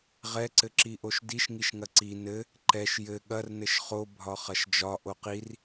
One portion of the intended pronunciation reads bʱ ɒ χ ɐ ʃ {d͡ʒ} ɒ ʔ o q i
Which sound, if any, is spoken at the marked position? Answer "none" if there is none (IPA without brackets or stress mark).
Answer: d͡ʒ